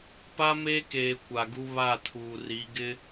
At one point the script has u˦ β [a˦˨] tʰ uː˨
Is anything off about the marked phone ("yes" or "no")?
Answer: no